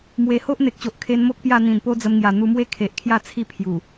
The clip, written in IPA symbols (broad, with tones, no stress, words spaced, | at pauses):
mwe˨˩ho˦ʔ n̪e˨k̚t͡ɕo˨ʔ kʰe˧n mo˦k̚pja˥˧ n̪ĩ˨˩npo˦d͡zə˧mŋja˨˩ n̪u˧mwe˥˧ kʰe˨ʔkʰja˥˧ t͡sʰi˥˧pʰju˨˩